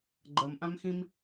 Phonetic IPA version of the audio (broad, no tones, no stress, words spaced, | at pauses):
ɡ͡ǃɐm ʔãmxĩm